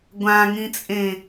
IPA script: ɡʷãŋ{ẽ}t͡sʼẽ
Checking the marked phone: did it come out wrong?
yes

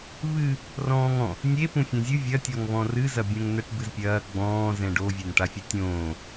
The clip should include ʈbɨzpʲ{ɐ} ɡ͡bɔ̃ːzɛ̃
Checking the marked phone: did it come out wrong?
yes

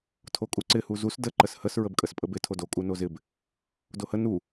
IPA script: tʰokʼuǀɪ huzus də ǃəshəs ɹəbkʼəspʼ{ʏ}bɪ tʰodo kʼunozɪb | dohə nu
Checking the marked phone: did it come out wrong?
yes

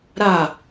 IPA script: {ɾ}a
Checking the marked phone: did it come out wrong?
no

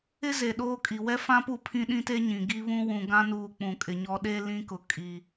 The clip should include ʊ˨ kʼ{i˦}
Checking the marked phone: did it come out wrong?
yes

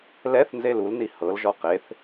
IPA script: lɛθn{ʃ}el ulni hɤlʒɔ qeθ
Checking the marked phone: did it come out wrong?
yes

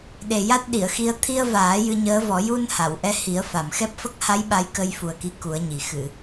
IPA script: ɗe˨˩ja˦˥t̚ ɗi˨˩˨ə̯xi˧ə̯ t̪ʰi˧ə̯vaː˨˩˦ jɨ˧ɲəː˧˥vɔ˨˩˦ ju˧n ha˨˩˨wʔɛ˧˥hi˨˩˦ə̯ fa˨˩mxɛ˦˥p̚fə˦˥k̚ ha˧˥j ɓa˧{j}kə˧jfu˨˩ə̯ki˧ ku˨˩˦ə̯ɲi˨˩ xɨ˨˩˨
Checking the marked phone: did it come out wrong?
no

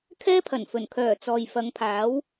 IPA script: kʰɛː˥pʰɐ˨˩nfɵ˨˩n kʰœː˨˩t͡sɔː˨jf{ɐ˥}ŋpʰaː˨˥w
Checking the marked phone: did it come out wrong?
yes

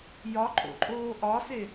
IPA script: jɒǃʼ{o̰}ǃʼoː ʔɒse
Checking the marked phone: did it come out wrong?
no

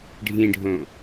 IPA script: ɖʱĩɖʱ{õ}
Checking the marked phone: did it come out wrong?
no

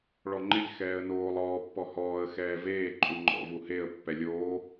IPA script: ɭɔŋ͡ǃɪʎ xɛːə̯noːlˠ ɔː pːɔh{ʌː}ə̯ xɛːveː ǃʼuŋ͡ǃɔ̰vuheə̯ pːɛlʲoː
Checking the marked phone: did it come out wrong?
yes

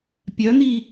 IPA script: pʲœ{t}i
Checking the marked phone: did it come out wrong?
yes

